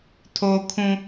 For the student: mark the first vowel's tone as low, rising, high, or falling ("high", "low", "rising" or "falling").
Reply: high